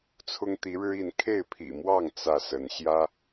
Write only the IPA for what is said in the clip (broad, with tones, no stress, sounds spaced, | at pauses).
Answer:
t͡sʰ ʊ˦ ŋ t̪ i˨˦ ɻ ɻ̩˦ i˨˦ n kʰ e˥˨ ɪ̯ pʰ ḭ˨˩ m w ɑ˥˨ ŋ t͡s ä˥˨ s ə˨˦ n ɕ j ä˦